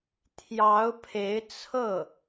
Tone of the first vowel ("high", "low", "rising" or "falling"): rising